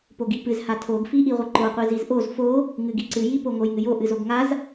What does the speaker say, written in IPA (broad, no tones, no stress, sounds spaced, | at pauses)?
p o ɡ i p ɨ z h a tʰ o ɡ f i ʔ i ʁʷ ɨ ǃ o qʷ i z i z ʔ o z f o | ŋ ɨ ɡ i ǀ ɨ j i p o ŋ o j ŋ ɨ j o ʔ ɨ z o ɡ ŋ a z